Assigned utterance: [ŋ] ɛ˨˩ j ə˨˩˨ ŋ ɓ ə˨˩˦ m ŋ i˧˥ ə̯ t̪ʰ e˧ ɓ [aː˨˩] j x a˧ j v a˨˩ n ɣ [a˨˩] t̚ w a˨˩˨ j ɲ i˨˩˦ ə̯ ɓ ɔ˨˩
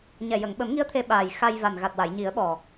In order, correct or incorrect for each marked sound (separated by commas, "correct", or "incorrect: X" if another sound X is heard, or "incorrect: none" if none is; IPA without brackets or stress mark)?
incorrect: ɲ, correct, correct